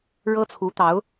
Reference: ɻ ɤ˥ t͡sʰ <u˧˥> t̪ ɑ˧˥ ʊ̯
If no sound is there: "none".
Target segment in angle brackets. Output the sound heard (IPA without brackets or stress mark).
u˧˥